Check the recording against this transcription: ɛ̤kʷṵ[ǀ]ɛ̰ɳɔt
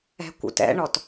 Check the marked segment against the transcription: incorrect: t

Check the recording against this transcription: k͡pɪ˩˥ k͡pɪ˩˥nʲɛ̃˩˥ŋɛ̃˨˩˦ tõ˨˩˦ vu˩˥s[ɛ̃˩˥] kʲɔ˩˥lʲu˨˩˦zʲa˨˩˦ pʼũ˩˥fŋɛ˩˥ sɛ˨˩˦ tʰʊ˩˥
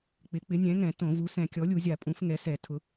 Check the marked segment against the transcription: incorrect: ɛ̃˨˩˦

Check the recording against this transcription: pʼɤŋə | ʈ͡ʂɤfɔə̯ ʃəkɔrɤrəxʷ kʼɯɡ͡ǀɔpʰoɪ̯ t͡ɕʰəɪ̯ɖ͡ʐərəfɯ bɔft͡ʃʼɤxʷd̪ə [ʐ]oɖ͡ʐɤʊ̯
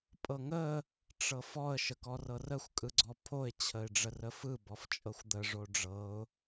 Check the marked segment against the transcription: correct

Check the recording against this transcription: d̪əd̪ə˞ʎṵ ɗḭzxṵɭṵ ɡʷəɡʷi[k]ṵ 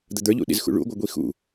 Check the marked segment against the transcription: incorrect: x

